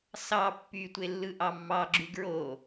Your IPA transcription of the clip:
s ɑ pː y tʷ e lː ɯ ʔ ɑ mː ɑ ɡ͡ǁ y ɡ ɹ o

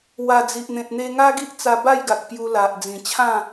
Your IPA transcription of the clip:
w a˨˩ d͡z i˨ ʔ n̪ ẽ˨ t̚ n̪ e˧ ŋ a˦ ɡ i˦ ʔ t͡s a˧ b a˥˧ j ɡ a˨ k̚ p j u˧ l a˨ ʔ d͡z ĩ˨˩ t͡ɕʰ ã˥˧

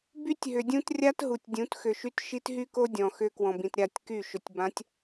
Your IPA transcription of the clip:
b y˦ tʲ ɦ ʏ˨ dʲ ũ˦ t rʲ a˦ t ɦ u˨ tʲ dʲ ũ˨˦ t x ʏ˨ ʃ y˦ t ʃ i˦ t ɦ y˦ k o˦ dʲ ɔ̃˨ x ʏ˦ k w ɔ̃˨ b ĩ˨ t ɾʲ a˦˨ tʲ k y˦˨ ʃ ʏ˨ tʲ b ã˨˦ tʲ

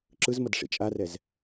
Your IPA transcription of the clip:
ǁ ɯ z m ʌ d ʂ ḭ t͡ʃʼ a r ɛ z

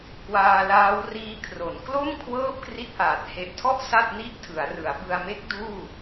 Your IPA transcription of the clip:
k w aː˧ l aː˦˥ w r iː˦˥ kʰ r o˩˦ n k l o˥˩ m kʰ w ɤː˥˩ p̚ k r i˥˩ t̚ ʔ aː˨˩ t̚ h e˨˩ ʔ tʰ ɔ˥˩ ʔ s a˥˩ t̚ n i˥˩ ʔ tʰ ɯ˩˦ a̯ r ɯ˩˦ a̯ b ɯ˧ a̯ m e˦˥ k̚ d uː˥˩

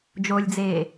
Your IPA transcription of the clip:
d͡ʒ o lʲ d͡z eː

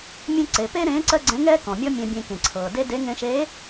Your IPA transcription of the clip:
mʲ ẽ˥ ǀ e˩˧ p e˥ ɾ ẽː˧˥ ǀ ɜ˥ ɡ͡ǀ ɛ̃˧˥ ŋ ɛː˥ k ɔ̃˩ mʲ ɔ˥ mʲ ɛ̃˧ bʲ ẽ˧ k ẽ˩ ǀʰ ɤː˩ d e˥ d e˧˥ ŋ ẽ˧ ʃ eː˧˥

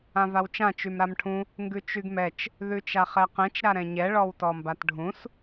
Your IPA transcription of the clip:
ã v a w t͡ʃ ã t͡ʃ y m ɾ a m ʈʰ ũ | ŋ ɡ ʉ t͡ʃ y ɡ m ɛ t͡ʃ | ð ʉ t͡ʃ a χ ɛ q ɛ̃ t͡ʃ ɾ a ɾ ɛ̃ ɲ ɛ ɭ ɔ w t ɔ m b a t ɖʱ ũ s

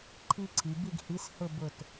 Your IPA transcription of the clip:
ǃʰ i˦ ǀʰ i˩˧ b i˦˨ ɡ h i˨˥ s h ʊ˦˨ b ʊ˦˨ t

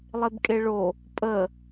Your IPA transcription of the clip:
lˠ e b kʼ e ɭ o | pʼ ə

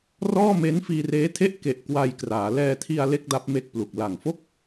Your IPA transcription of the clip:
r ɔː˥˩ m e˦˥ n f iː˧ r eː˦˥ tʰ e˥˩ ʔ k e˨˩ ʔ k w a˧ j k r aː˩˦ l ɛː˧ tʰ i˧ a̯ l e˥˩ k̚ d a˦˥ p̚ m e˦˥ k̚ p l u˨˩ k̚ l a˨˩ ŋ f o˥˩ k̚

